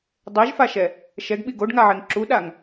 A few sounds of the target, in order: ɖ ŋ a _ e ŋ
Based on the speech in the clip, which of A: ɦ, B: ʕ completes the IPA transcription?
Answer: B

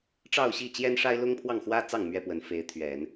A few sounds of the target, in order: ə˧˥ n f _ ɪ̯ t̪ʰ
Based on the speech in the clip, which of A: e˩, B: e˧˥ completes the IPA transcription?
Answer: B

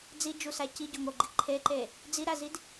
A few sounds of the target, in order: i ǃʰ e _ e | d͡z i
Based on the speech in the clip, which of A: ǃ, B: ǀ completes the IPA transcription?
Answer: A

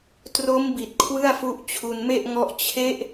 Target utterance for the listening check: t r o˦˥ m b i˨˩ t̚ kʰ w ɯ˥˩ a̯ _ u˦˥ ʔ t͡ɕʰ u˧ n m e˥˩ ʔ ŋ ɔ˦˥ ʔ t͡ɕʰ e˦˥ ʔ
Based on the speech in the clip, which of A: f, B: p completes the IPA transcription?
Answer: A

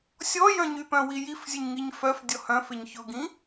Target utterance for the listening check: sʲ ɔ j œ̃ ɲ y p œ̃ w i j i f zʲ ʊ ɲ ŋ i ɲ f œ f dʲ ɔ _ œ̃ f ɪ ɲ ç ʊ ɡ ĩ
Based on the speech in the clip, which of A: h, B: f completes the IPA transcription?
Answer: A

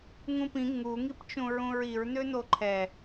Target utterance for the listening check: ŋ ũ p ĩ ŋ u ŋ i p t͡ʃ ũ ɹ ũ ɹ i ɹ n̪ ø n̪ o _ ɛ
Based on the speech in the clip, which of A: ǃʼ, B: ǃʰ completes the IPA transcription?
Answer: B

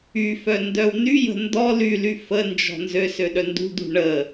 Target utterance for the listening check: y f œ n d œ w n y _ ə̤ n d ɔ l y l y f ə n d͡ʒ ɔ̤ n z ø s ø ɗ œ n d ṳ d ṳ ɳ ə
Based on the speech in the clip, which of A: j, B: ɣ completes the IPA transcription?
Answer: A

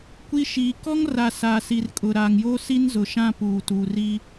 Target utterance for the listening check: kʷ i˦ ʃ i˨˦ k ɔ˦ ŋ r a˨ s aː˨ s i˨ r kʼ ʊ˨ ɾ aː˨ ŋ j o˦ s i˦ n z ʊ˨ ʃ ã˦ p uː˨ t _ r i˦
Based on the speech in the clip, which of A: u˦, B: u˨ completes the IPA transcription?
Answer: B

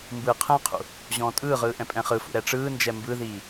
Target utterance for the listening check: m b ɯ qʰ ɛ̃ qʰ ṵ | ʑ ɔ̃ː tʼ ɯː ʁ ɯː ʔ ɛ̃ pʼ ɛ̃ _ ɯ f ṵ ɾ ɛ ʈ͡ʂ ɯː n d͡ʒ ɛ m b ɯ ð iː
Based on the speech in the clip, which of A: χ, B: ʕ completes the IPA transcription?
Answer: A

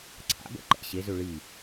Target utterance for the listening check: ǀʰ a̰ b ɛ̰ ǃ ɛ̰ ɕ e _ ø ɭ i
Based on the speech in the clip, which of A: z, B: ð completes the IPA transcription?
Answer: A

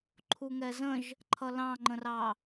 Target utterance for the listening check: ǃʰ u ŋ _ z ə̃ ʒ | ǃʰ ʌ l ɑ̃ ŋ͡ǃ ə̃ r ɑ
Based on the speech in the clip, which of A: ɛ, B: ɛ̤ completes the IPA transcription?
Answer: A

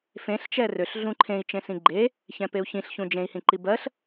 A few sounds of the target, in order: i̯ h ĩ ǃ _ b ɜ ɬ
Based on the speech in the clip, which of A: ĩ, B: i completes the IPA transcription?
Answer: B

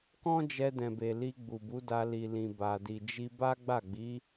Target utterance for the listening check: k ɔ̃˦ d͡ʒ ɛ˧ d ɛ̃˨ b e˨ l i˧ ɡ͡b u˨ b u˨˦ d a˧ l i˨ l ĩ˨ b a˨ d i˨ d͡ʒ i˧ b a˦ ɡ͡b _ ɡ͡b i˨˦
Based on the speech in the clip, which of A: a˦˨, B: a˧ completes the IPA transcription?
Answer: A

